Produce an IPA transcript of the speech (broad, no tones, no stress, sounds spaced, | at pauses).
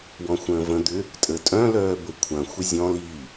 w ɔ̃ xʷ ə̃ː v ə̃ d̪ ʏ | tʼ ə tʼ œ̃ l œː b ə kʷʰ ɐ̃ xʷ ə zʲ ɔ̃ l i